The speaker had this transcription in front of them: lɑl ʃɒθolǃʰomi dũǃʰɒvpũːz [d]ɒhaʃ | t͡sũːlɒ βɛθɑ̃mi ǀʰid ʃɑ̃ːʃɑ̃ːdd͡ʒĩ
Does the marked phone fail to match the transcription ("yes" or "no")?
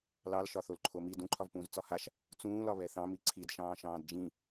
yes